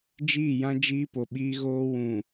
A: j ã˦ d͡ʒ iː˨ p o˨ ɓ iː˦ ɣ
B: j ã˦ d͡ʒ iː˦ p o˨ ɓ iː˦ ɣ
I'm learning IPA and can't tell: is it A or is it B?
B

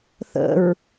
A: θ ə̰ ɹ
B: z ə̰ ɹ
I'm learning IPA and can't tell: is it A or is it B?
A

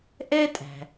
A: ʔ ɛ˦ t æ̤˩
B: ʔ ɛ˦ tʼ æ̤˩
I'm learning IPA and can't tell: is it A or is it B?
B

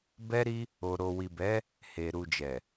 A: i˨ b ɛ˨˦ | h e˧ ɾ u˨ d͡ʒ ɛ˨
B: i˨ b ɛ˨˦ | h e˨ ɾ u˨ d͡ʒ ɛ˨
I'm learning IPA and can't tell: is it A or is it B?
B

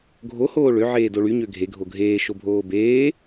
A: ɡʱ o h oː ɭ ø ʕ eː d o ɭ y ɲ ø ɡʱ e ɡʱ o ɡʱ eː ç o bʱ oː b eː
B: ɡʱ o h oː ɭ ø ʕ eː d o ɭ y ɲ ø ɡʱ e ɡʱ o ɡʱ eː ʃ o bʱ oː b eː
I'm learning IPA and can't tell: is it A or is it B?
B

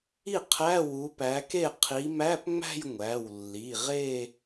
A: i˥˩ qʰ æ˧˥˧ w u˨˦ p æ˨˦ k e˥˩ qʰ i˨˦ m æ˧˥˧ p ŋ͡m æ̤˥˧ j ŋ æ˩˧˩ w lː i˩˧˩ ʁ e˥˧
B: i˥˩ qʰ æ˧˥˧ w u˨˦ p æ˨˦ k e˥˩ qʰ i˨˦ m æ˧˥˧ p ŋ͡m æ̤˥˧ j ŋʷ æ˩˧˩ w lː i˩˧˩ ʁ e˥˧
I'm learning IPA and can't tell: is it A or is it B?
B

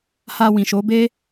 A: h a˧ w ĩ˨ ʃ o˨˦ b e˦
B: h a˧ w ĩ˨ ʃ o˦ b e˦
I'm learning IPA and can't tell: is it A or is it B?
A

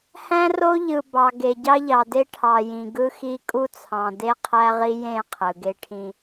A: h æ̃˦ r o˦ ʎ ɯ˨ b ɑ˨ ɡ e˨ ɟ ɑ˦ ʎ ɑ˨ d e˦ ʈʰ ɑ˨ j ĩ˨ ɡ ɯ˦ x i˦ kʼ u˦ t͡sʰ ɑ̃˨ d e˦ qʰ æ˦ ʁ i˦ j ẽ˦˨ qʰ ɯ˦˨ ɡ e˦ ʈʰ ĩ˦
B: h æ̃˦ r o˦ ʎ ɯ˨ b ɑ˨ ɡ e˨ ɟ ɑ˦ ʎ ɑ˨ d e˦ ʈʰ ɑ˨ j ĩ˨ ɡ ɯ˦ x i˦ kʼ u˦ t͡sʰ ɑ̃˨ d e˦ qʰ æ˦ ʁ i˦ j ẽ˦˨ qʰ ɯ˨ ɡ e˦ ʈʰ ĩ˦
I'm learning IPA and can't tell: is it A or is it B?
B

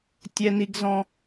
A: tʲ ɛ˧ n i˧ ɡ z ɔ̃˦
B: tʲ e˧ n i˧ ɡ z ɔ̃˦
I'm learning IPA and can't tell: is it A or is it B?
A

